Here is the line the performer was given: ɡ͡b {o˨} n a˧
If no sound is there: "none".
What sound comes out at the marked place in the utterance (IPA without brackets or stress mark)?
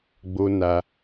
o˦